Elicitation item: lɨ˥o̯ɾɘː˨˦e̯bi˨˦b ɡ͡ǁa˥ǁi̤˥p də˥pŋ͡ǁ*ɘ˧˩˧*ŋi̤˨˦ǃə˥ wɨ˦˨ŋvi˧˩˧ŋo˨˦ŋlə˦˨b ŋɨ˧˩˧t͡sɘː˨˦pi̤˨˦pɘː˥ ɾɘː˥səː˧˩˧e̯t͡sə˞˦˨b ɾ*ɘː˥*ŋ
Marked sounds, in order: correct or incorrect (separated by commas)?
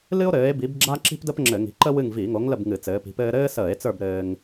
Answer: correct, correct